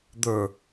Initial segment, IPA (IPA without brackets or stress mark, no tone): d̪